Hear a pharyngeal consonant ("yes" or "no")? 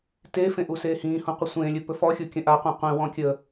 no